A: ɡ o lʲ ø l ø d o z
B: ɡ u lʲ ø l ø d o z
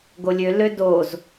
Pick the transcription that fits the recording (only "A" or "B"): A